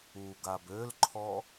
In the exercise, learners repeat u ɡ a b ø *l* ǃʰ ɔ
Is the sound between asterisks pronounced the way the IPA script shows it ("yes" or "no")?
yes